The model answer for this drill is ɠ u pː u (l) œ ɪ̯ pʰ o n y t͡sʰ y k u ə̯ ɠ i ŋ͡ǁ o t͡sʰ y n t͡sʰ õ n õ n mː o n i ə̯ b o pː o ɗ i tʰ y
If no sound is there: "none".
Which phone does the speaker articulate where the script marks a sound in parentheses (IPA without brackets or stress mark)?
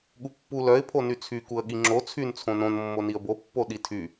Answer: l